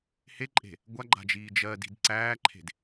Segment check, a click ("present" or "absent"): present